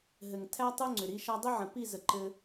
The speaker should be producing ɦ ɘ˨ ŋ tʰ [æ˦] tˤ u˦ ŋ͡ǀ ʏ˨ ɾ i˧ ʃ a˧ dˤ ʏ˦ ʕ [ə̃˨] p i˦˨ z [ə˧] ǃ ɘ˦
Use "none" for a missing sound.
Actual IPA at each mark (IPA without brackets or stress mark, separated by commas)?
æ˦, ə̃˨, ə˧